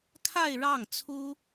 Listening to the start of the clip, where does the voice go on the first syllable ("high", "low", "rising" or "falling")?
falling